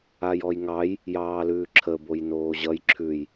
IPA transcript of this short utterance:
ajɔjŋɑj | jɑːlʉːǁʰə bojnoːʑʌj ǁʰʉj

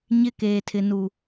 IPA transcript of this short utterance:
ɲɪ˦˨keː˨tʰɪ˨nu˨

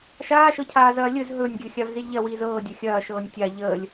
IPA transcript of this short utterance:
ʃaːʃɤcʰaː zɐːlʲɵz ɦɵnʲɡʲɵ xʲavzilʲʎɐwiːz ɤːdʲɐ xʲɐːʃɤːnʲ tʲa ʎəːlʲ

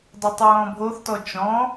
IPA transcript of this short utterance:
dˤøtˤɹɔ̃bʱoθ tɔt͡ʃɔ̃

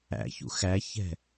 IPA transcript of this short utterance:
æ̰çṵ xæçɛ̤

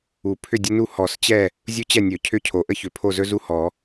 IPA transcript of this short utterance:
u˨˩˦pʰʏ˥˨dʲə˥nu˥˨ hɔ˨˩˦st͡ɕɛ˥˨ | zʲu˥t͡ɕɛ˥˨nʲɵ˨˩˦ cʰʏ˥˨cʰo˨˩˦ ʔə˥çʏ˨˩˦ pʰo˥˨zɵ˥zu˥˨hɔ˨˩˦

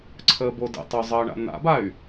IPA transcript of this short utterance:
ǀʰəːbodə̰tˤo zˤəːɳa̰na̰bay̯

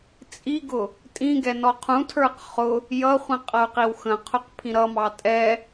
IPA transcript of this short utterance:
t͡sʼiɡʊ | tʼĩɡɛ nɔqʰũtʰə˞q χʊ | jʌχʷĩ qʼʌu̯qiwxə̃qʰʊq pʰĩɾʌmɑ tʼɛ

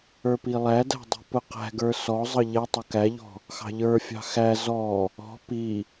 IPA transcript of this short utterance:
ə˞pilˠædæ̤ dˤi̤pʊqæ̤ɡə˞ sɔzˤʌ ʎɛ tˤʊkæʎɔ̤ | xɑ̤ʎə˞fʲɑ̤ xæ zɔ | ɔ̤ pi

